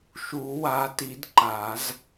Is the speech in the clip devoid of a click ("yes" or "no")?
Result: no